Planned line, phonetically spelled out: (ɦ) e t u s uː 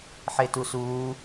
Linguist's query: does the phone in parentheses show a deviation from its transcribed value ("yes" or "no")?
yes